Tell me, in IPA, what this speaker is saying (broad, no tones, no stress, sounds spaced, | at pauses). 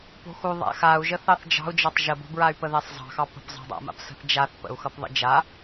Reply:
p o̤ x u ðˤ a̰ x a u̯ ʒ ə θ ɑ θ d͡ʒ ɑ̤ u̯ d͡ʒ ɑ tˤ ʒ ə b o̤ b ɹ a y̯ p ə ð ɛ sˤ zˤ ɑ̤ x ɑ p ə̤ p zˤ ɑ̤ dˤ a̰ m a̰ p s ə̤ θ d͡ʒ a θ p ə̰ u̯ x ʌ p ðˤ ə̰ d͡ʒ a